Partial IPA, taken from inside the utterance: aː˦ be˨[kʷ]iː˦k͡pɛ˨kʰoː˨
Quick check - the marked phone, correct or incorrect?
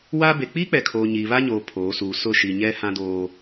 incorrect